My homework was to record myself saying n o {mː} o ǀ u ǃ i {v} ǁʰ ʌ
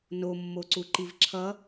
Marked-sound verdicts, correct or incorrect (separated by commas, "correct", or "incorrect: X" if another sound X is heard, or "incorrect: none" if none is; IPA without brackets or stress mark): correct, correct